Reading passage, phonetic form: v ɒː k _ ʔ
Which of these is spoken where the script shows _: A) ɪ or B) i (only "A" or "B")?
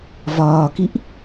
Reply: B